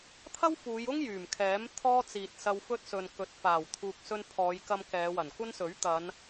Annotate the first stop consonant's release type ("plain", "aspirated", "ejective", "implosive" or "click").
aspirated